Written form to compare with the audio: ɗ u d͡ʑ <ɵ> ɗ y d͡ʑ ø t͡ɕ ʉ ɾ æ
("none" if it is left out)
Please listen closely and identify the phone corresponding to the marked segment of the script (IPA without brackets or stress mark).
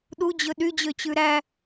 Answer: ɵ